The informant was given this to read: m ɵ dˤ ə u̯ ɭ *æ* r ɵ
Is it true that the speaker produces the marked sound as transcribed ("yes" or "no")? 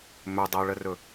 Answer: no